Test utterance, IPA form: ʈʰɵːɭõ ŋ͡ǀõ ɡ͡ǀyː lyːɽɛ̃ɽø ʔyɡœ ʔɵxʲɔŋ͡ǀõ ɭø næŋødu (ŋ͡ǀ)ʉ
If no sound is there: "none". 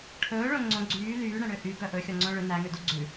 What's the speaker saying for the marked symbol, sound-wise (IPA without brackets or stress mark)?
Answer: ɡ͡ǀ